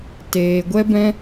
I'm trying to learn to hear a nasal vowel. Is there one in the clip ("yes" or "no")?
yes